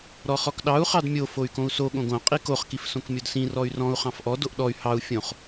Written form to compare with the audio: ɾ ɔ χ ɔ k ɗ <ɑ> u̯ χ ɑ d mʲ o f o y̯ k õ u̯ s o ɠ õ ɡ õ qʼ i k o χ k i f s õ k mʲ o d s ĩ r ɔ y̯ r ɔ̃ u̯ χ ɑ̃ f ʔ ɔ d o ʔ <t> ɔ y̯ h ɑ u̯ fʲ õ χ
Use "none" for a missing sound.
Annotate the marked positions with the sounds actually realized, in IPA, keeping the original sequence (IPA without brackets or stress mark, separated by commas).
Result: ɑ, ɗ